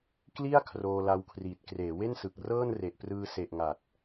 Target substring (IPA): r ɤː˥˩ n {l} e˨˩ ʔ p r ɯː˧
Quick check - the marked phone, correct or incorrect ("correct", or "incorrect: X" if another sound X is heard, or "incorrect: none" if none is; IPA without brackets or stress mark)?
incorrect: r